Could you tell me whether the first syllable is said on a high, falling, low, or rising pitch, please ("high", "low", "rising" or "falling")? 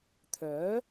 rising